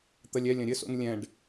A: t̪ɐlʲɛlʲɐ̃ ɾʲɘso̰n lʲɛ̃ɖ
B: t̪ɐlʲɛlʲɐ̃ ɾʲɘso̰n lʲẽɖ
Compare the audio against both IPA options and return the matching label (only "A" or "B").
A